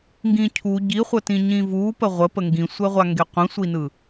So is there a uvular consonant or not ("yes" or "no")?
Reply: yes